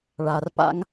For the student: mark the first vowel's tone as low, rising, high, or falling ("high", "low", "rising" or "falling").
low